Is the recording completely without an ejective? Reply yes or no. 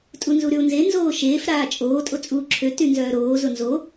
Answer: no